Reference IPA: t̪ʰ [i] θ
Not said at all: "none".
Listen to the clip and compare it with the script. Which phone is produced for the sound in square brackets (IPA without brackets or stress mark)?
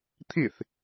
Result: i